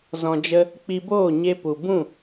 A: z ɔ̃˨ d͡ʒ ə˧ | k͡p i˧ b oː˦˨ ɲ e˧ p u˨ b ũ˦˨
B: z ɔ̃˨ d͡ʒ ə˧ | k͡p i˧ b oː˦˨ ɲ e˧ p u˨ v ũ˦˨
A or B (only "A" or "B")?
A